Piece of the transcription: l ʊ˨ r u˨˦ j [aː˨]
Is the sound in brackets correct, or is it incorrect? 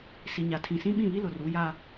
incorrect